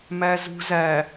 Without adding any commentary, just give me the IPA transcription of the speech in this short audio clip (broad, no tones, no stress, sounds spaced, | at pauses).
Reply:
m æ z ṳ z æ